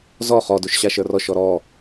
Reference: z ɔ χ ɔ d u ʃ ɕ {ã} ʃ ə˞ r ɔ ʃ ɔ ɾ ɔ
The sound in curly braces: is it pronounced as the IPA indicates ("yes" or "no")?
no